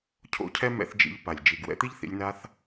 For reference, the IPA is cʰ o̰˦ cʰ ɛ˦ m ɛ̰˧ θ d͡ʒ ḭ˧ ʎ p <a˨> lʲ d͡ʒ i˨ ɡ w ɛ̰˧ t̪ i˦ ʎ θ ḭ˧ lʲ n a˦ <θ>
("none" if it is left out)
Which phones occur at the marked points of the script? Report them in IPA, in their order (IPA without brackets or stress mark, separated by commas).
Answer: a˨, θ